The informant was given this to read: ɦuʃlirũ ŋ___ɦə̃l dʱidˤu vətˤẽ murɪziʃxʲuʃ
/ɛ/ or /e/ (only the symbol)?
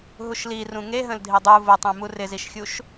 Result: e